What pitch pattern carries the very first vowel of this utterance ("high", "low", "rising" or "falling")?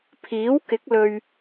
rising